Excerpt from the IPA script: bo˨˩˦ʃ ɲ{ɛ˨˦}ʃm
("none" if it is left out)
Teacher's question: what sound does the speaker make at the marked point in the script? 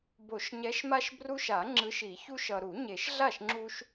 ɛ˨˦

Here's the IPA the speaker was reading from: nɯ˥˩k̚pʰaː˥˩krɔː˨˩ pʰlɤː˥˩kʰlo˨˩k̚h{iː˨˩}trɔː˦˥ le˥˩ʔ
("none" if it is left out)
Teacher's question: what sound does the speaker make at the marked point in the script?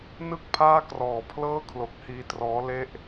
iː˧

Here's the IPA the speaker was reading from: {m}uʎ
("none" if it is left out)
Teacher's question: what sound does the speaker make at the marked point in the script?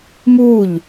m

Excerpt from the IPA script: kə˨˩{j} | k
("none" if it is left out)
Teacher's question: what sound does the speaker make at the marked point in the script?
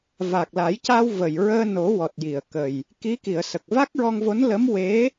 j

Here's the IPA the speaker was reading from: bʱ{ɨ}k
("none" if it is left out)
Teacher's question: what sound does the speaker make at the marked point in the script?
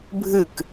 ɨ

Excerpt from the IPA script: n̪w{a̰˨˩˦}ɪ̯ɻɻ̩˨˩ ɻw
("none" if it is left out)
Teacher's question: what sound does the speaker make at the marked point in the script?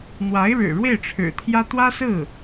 a˧˥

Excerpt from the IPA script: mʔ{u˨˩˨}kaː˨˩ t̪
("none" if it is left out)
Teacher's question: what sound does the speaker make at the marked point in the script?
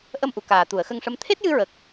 u˨˩˨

